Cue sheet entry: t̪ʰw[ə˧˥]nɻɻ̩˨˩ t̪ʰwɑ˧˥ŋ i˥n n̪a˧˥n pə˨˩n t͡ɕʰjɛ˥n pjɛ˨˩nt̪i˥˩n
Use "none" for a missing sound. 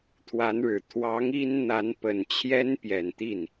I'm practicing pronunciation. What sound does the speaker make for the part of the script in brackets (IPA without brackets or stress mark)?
a˧˥